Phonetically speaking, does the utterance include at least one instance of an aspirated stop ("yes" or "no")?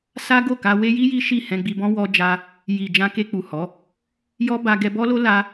no